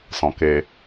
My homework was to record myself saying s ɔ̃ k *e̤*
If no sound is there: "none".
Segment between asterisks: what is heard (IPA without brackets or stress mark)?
e